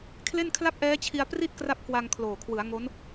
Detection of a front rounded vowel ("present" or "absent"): absent